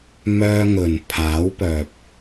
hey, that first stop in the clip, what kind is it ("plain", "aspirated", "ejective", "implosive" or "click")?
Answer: aspirated